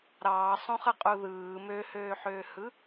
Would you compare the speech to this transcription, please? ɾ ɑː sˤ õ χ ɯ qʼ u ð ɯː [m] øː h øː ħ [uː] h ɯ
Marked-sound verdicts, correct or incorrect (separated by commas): correct, incorrect